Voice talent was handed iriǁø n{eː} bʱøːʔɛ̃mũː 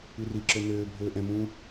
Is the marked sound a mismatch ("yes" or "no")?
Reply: yes